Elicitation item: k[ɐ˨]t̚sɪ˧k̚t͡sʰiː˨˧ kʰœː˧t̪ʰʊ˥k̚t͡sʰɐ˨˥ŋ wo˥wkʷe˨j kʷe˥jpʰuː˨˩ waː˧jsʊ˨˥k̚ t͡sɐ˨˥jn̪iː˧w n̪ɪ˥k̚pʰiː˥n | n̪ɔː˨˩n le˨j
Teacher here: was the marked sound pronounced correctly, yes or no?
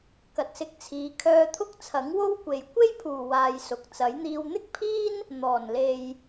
yes